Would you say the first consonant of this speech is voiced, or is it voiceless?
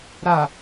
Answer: voiced